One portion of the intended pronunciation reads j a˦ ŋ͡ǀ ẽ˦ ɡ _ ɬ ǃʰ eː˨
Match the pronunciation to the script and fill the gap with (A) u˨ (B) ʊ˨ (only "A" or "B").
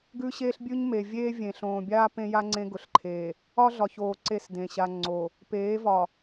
B